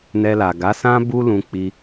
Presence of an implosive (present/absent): absent